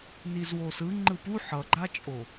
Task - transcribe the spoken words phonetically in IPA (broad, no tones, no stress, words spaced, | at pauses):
nizwosɯ ŋ͡ǃɯpu ħʌɡ͡ǃat͡ʃʼo